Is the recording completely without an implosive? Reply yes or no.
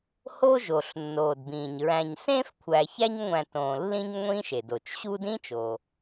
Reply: yes